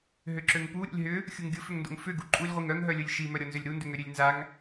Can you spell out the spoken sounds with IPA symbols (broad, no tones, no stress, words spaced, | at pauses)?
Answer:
ɦʏǁøŋpu ɾʲo̰lʲɦʏ | xʲuŋɡʲʊfʏŋndo̰ŋ fʏ ɡuǃʼulʲʁʷiŋ œŋɦœlʲʊlʲ ʃimœɾʲɔnzʏlʲ ɾundʏŋø ɾʲølʲnzaŋ